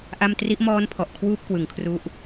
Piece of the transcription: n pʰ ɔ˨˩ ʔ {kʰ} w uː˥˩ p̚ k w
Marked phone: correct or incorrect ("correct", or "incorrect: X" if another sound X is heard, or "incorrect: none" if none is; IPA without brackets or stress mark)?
correct